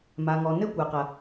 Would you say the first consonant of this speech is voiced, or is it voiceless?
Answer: voiced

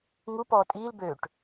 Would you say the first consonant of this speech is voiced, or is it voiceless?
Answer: voiced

